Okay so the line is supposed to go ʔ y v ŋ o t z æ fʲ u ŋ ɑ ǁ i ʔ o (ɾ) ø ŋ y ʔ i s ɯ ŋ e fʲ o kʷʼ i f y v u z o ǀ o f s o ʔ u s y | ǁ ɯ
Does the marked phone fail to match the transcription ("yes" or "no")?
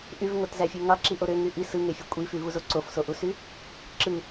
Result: no